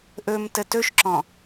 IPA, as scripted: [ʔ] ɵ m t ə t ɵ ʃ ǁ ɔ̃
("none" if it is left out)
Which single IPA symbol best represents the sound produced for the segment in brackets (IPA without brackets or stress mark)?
ʔ